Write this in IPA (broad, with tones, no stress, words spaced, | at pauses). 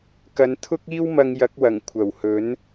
kɐ˨˧nt̪ʰʊ˥k̚iː˥wmɐ˧ŋ jɐ˨˥k̚wɐ˨˩ŋ kʷʰɐ˨˩whɵ˨˥n